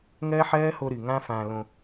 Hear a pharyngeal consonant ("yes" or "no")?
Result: yes